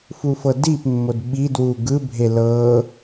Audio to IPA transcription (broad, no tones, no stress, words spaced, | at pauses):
fufɤdipmːod ɓidwu ɡɯbʱe lɤ